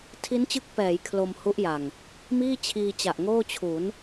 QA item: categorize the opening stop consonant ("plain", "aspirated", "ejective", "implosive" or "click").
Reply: aspirated